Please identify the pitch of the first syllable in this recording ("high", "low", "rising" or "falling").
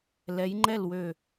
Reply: rising